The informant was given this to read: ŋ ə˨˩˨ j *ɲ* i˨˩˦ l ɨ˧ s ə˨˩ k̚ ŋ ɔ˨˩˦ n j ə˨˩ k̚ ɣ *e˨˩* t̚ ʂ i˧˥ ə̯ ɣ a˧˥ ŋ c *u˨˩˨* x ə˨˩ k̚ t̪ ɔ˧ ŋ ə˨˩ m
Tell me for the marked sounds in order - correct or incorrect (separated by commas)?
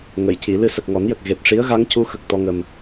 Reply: incorrect, correct, incorrect